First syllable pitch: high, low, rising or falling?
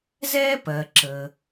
high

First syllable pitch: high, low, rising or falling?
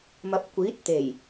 rising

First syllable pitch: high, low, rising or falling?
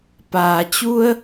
low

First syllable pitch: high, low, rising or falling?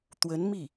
rising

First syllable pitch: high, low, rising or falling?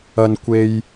low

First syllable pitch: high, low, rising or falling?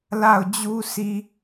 falling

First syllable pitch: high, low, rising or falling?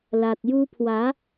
low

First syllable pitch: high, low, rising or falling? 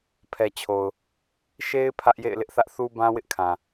low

